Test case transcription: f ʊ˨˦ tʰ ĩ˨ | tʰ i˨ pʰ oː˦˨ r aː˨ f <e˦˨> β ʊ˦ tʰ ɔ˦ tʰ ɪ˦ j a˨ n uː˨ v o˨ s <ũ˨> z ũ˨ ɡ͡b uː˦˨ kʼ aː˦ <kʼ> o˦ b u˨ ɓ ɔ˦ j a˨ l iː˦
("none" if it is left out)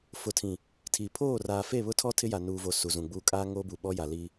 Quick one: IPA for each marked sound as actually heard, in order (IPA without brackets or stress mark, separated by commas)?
e˦˨, u˨, ŋ